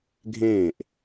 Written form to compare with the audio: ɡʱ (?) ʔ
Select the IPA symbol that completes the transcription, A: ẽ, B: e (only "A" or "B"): A